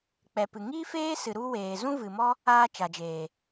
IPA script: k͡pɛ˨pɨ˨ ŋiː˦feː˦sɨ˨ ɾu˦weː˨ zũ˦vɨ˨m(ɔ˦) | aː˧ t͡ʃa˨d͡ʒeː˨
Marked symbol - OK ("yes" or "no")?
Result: yes